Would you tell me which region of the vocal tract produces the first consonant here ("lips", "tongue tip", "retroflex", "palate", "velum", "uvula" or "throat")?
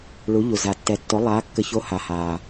retroflex